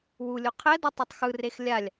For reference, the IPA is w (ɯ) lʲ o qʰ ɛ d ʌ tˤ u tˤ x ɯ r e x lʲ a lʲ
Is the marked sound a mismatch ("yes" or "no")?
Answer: yes